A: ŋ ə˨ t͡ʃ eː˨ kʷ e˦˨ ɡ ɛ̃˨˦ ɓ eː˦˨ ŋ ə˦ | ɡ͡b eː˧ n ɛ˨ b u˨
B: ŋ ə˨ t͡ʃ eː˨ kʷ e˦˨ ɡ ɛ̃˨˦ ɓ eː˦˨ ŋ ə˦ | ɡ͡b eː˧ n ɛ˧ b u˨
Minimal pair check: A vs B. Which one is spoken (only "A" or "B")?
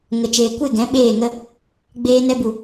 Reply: B